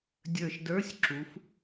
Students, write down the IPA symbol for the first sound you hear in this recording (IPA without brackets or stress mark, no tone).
dʲ